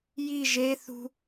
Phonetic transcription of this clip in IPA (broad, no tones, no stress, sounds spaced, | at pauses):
j i ʒ e θ ṳ